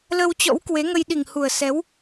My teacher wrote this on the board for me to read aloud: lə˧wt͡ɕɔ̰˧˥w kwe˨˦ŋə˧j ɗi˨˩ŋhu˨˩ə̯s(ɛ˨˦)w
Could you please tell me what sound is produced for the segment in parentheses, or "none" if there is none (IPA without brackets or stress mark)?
ɛ˨˦